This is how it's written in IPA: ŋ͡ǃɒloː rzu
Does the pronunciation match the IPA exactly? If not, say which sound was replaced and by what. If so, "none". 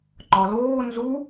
r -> n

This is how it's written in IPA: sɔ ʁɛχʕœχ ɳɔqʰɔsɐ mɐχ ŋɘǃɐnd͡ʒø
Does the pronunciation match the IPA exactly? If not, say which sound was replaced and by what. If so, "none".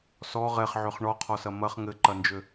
œ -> ø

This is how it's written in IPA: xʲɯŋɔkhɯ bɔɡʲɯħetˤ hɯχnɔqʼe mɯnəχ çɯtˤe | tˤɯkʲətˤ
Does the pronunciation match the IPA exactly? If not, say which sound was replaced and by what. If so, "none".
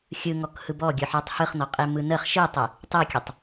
ç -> ʃ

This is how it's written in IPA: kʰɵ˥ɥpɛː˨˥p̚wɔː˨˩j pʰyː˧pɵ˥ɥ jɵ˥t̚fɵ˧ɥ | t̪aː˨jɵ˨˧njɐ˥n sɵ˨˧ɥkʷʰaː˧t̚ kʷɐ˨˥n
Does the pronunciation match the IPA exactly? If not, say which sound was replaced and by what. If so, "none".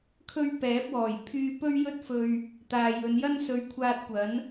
none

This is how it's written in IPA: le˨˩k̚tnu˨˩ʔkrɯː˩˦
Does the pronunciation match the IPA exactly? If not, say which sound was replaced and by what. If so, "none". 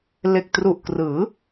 n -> r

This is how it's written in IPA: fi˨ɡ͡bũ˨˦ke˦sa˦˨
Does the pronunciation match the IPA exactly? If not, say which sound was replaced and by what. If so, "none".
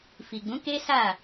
none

